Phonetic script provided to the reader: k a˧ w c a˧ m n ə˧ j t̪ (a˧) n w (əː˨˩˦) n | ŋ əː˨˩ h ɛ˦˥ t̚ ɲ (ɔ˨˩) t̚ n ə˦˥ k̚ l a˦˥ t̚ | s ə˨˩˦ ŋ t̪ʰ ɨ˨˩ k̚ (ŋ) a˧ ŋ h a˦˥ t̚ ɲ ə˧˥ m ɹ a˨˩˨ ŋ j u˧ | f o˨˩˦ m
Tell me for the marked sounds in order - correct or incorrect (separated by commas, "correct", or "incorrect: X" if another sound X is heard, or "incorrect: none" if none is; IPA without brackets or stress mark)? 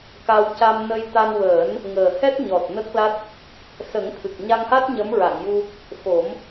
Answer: correct, correct, correct, incorrect: ɲ